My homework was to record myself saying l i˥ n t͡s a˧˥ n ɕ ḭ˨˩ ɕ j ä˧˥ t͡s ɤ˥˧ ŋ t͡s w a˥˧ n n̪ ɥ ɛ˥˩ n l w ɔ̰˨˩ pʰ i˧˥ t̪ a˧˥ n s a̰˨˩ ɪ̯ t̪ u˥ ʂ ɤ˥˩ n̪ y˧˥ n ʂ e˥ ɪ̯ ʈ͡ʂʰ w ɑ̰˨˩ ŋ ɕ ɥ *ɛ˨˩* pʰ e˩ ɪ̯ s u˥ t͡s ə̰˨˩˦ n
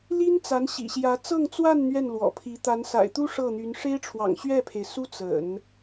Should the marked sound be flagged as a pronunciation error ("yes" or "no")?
yes